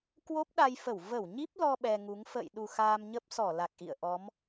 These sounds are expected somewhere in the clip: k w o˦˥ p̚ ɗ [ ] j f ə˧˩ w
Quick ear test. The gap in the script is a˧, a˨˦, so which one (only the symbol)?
a˧